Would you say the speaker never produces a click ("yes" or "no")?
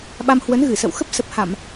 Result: yes